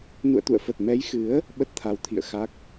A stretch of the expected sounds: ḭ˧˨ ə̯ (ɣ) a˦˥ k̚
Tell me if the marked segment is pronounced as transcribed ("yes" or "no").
no